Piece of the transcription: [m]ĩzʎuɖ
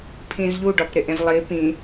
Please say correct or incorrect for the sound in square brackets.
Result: incorrect: pʰ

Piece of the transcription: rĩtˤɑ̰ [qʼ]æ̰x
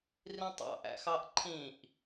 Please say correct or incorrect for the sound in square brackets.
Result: incorrect: ʔ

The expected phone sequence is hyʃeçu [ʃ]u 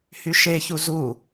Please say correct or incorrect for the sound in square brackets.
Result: incorrect: z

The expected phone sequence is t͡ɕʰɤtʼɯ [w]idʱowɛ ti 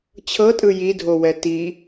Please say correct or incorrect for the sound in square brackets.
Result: incorrect: j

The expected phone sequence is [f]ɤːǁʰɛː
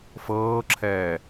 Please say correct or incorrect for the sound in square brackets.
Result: correct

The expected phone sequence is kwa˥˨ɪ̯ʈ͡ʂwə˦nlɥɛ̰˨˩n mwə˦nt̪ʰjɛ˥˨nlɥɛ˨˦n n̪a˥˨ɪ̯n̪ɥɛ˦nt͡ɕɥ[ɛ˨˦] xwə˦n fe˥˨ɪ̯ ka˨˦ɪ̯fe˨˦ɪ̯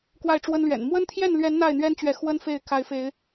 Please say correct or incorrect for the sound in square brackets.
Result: correct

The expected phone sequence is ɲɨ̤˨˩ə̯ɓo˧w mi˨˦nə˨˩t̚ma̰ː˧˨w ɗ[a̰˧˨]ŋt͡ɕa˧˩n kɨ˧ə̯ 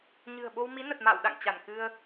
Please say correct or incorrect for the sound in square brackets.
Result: correct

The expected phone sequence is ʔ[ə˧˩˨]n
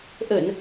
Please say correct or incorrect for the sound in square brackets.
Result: correct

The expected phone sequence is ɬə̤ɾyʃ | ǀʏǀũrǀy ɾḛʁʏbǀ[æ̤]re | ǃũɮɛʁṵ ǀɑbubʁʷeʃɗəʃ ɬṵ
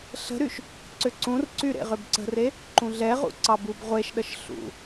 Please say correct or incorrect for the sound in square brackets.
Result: incorrect: ə̤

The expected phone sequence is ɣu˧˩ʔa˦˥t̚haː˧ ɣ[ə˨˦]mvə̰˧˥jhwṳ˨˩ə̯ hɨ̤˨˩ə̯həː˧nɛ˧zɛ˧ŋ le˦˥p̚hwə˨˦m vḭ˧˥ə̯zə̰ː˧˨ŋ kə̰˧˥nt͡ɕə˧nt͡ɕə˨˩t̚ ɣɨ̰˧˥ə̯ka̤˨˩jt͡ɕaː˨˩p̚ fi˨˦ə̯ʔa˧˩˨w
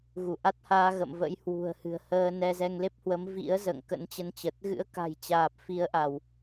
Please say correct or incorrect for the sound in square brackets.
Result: incorrect: ə̰˧˨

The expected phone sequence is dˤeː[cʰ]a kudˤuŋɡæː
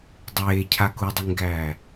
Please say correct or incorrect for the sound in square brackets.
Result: correct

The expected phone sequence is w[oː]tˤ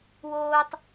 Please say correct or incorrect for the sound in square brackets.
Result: correct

